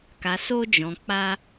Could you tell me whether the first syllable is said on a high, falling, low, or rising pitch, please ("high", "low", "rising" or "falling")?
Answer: low